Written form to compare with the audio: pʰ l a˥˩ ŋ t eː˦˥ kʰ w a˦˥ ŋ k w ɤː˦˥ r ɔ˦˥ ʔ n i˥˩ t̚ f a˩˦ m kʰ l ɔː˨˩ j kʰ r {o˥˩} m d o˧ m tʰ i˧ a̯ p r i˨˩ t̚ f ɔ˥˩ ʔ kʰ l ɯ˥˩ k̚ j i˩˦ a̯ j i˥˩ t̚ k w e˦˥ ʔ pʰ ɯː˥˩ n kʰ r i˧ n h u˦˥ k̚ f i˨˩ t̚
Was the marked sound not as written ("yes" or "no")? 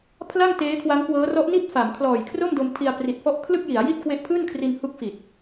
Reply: no